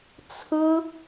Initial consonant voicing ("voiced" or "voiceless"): voiceless